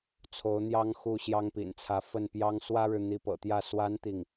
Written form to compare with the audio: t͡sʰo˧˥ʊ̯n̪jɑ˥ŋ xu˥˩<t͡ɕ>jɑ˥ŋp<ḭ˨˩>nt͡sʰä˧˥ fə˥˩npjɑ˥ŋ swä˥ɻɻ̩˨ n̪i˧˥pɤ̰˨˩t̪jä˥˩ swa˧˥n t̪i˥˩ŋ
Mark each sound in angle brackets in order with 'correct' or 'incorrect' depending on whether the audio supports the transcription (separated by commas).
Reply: incorrect, correct